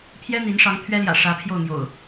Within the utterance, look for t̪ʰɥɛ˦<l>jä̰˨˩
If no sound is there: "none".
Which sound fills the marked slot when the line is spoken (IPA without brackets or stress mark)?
l